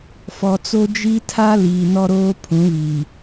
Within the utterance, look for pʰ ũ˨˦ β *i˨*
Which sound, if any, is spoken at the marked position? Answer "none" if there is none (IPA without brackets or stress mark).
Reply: i˨